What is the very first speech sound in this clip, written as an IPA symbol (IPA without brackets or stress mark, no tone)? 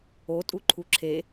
o